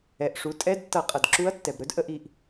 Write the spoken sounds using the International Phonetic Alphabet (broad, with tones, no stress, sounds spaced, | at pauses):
ɛ˩ ʔ ʂ u˩˧ tʼ ɛ˧˥˧ d tː ʌ˧˩˧ qʼ ʌ˩ d ǁ u˧˥ ɐ̯ tː ɛ˩ b ɾ ɵ˧˥ d ʔ ə˧˩˧ ʔ i˩ ʔ